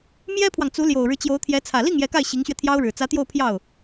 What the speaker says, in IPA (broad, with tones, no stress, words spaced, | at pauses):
mjɛ˥pʰwɑ˨ŋt͡su˧˥ ljo˨˩ʊ̯ɻɻ̩˦ t͡ɕjo˧˥ʊ̯t̪ʰjɛ˧˥ t͡sʰä˨˩li˥˩ŋ jɛ˧˥ka˥˩ɪ̯ ɕi˧˥ŋɕɥɛ˧ t̪ʰjɑ˥ʊ̯ɻɻ̩˨˩ t͡sä˧˥t̪jo˥˧ʊ̯pʰjɑ˥˩ʊ̯